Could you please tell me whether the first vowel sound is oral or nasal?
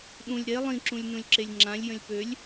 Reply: nasal